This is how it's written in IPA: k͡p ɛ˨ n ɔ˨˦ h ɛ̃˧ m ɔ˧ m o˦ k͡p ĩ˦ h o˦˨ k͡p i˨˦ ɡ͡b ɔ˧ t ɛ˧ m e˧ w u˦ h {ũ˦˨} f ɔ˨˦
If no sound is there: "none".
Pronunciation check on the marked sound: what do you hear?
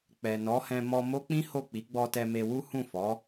ũ˦˨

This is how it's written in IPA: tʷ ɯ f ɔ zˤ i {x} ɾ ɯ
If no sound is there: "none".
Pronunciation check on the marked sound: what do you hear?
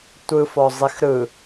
x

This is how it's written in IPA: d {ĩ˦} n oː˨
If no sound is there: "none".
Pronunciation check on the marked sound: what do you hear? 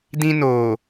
ĩ˦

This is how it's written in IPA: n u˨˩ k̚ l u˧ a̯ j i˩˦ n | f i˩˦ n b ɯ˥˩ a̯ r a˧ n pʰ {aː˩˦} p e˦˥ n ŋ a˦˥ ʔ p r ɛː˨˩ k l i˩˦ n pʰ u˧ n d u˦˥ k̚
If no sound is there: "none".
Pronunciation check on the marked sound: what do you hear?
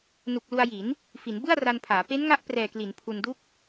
aː˩˦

